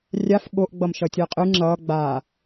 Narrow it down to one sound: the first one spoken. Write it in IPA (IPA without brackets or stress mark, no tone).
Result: rʲ